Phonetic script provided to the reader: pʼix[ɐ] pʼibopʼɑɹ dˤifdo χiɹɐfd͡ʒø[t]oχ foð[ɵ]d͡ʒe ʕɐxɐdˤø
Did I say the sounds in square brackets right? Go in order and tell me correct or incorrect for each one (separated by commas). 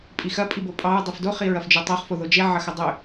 correct, incorrect, incorrect